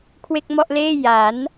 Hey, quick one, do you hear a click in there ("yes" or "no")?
no